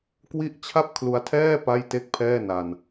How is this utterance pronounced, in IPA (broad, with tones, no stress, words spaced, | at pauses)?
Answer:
kwi˥˩ʔ t͡ɕʰa˥˩p̚kʰlu˧a̯tʰɛː˥˩ pa˥˩j te˥˩k̚pʰɛː˥˩ na˧n